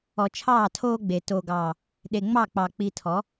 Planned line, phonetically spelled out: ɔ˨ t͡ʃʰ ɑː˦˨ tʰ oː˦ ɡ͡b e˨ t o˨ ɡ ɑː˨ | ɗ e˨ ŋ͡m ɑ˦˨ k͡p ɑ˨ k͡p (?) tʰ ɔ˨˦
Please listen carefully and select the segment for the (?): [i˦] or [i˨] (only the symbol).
i˨